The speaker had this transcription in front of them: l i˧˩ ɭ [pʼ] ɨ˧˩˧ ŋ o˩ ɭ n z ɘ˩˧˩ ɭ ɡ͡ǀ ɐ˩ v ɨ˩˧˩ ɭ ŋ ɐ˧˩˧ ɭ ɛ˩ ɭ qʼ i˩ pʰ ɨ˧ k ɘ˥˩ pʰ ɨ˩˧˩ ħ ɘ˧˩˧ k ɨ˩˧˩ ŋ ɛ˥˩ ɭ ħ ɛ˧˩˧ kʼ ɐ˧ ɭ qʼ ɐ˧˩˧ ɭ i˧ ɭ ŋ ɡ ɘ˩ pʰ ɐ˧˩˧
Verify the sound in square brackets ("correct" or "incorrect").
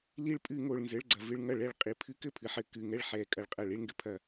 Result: correct